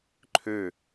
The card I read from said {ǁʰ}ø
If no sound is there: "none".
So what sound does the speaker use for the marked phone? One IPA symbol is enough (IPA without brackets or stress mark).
ǃʰ